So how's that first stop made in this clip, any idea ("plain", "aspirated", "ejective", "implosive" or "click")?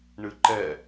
click